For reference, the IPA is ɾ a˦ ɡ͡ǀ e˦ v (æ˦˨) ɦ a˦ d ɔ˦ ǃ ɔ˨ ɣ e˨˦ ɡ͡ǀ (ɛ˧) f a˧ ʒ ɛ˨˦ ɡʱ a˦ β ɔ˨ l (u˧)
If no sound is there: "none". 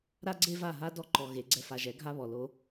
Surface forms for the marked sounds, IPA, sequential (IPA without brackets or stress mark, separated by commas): a˦˨, ɛ˧, o˧